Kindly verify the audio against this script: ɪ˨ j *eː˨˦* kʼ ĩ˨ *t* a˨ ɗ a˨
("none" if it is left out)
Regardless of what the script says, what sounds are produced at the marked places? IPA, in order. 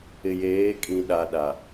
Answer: eː˨˦, ɗ

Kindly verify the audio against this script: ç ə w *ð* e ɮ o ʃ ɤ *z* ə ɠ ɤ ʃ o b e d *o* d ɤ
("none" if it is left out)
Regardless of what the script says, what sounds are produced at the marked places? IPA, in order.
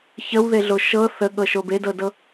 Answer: ð, θ, ɤ

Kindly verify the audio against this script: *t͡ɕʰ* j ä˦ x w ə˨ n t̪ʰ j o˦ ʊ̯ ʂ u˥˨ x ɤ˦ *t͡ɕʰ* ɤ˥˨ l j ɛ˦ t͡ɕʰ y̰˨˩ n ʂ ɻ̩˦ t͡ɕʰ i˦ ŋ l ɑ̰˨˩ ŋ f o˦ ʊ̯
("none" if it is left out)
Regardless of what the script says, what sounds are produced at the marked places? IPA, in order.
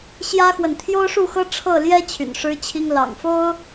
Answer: ɕ, ʈ͡ʂʰ

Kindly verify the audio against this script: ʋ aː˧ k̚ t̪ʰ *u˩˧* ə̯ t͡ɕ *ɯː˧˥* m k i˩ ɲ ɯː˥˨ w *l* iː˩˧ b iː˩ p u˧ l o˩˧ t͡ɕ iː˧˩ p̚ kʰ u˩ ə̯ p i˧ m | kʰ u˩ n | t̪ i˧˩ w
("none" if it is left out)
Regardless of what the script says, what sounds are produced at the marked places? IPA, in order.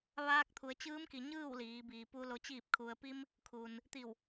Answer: u˩˧, ɯː˧˥, l

